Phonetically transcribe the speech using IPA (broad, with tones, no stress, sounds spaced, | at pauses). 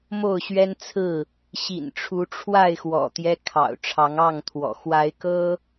m o˥˨ ʊ̯ ɕ ɥ ɛ˦ n t͡sʰ ɹ̩˥˨ | ɕ ḭ˨˩ n ʈ͡ʂʰ u˨˦ ʈ͡ʂʰ w a˥˨ ɪ̯ x w ɔ̰˨˩ t̪ j ɛ˦ kʰ ɑ̰˨˩ ʊ̯ ʈ͡ʂʰ ɑ˨˦ ŋ ɑ˥˨ ŋ t̪ʰ w ɔ̰˨˩ x w a˨˦ ɪ̯ k ɤ˦